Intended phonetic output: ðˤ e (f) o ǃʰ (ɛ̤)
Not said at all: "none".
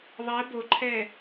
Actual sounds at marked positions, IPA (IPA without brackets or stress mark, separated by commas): b, ɛ